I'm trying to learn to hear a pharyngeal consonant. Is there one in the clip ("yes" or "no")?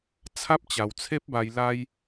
no